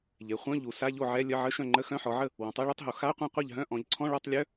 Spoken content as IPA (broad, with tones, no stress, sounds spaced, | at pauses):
ʎ e˩˧ χʷ œ̃˧˥˧ ʎ u˩˧ s a˧˥˧ ʎ o˥˩ ʕ ɛ˧˥˧ lʲ ə˧˥˧ ʕ ə˧˥˧ ʃ œ̃˥˩ ŋ͡ǃ ə˧˥˧ x œ̃˧˥˧ ħ ɔ˩˧ ʕ ə˥˩ | w ɔ̃˩˧ tˤ e˧˥˧ ɭ œ˧˥˧ tˤ ɦ o˩˧ x a˧˥˧ qʷ œ̃˥˩ qʷ a˥˩ ʎ ɦ œ̃˧˥˧ ʔ ɔ̃˩˧ ʎ ǀʰ ɔ̃˧˥˧ ɭ ɔ˧˥˧ tˤ lʲ œ˧˥˧